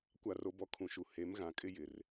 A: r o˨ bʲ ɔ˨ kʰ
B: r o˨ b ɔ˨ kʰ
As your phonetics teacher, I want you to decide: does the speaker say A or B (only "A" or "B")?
B